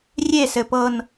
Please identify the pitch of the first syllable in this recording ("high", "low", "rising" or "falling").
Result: falling